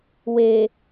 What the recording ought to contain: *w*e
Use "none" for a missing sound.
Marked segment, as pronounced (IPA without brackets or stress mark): w